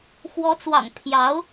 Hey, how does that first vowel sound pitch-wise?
rising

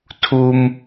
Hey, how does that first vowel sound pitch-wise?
high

